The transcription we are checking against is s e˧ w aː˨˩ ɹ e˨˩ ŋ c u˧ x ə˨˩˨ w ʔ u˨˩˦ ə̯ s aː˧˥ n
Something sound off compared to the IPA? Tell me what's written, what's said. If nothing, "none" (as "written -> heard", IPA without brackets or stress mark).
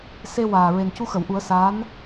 ŋ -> n